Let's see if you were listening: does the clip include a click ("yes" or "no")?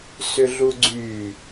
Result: yes